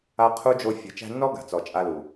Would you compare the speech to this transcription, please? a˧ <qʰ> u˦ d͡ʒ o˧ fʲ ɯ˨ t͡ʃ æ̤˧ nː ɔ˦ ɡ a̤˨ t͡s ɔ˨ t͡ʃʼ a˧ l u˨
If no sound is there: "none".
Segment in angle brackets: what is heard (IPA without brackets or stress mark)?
qʰ